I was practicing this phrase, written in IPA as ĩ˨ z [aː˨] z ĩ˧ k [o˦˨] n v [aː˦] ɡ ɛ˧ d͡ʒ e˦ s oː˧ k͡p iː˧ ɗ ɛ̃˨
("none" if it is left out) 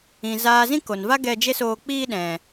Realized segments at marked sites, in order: aː˨, o˨, a˦

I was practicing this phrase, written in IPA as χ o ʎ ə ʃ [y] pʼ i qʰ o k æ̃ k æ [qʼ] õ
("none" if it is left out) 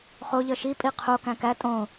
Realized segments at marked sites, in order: i, tʼ

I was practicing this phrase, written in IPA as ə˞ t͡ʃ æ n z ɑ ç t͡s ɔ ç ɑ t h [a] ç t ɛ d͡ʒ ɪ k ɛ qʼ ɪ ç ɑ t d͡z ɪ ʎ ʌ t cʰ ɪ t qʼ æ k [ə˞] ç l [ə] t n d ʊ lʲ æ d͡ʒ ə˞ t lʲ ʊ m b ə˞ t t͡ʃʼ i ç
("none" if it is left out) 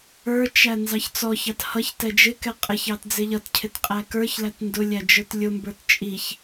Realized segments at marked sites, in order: ʌ, ə˞, æ

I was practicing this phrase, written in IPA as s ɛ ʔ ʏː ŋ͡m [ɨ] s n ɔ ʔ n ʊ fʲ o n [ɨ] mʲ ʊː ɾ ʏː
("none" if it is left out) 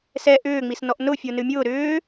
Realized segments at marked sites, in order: i, ɨ

